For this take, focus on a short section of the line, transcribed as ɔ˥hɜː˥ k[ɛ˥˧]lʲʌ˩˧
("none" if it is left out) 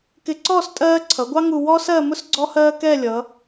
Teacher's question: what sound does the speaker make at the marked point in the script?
ɛ˥˧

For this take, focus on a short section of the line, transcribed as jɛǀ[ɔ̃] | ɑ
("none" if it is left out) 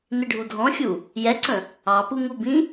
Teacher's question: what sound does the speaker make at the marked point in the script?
ə̃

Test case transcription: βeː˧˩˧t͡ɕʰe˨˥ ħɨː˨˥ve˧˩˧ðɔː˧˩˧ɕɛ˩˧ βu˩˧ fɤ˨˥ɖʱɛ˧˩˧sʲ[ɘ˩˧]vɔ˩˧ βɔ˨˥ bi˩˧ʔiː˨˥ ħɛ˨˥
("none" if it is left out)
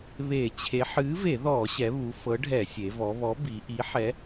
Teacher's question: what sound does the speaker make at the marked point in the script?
e˩˧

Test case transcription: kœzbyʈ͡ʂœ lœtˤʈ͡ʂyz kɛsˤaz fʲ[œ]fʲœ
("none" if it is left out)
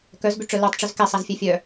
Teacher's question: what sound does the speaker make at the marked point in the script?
ɛ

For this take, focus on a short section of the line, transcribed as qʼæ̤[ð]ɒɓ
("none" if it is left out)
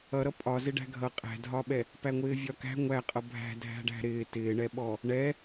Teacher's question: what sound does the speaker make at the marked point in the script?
dʱ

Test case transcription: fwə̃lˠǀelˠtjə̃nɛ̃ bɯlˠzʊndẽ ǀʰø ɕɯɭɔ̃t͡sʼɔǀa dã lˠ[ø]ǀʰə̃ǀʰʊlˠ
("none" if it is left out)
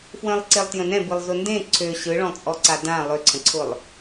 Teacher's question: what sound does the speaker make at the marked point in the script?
ø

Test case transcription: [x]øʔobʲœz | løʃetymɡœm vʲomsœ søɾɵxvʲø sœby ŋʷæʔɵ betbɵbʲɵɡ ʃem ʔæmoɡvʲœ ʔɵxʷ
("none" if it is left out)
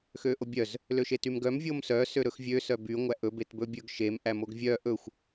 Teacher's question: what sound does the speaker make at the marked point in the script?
x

